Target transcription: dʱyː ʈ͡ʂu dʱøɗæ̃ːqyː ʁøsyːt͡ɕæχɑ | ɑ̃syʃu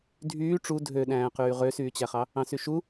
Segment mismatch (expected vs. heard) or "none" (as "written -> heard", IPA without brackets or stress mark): none